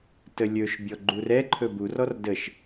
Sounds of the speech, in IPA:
təlʲɵʃ bʲɔɡ͡ǃurɛǃʰɵ burɔr dəʃ

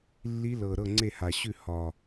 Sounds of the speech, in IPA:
lːi˧˥lɤ˨˩ ɾɤ˥˩ŋ͡ǀe˥˩ha˨˩ɕʉ˥˩ hɒ˨˩

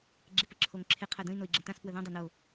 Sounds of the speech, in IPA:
ɡ͡ǁɪpəǁʰoŋǁʰɪ qʰɜdə̃i̯ noi̯ɡ͡ǁə̃tãs pwəðõ dˤɜno

